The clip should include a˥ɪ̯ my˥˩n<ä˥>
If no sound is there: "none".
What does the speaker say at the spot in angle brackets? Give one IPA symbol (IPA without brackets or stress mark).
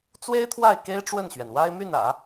ä̰˨˩˦